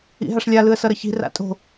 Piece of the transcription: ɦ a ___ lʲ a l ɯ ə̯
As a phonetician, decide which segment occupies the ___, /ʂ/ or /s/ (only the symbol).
ʂ